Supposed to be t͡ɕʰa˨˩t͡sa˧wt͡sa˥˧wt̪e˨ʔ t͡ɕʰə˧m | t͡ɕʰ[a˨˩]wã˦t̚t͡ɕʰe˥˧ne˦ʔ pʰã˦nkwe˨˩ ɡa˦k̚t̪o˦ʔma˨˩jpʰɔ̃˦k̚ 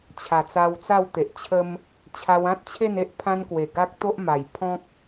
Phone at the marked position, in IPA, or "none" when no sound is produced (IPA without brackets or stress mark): a˧